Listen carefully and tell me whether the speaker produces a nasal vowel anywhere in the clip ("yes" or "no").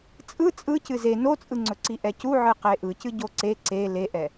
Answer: no